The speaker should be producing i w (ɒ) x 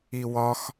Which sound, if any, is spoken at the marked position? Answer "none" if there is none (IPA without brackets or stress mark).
ɒ